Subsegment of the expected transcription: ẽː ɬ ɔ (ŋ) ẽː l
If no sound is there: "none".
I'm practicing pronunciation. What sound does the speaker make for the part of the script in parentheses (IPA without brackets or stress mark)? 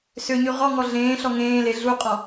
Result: ŋ